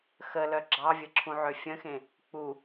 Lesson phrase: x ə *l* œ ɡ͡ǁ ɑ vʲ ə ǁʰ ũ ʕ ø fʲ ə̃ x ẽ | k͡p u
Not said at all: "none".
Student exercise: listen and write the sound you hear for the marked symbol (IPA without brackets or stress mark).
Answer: l